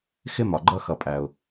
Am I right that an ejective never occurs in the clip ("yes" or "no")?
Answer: no